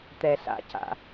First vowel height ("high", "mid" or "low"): mid